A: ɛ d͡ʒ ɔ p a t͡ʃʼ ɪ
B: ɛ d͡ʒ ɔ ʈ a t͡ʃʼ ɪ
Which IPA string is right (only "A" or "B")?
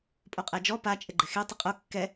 A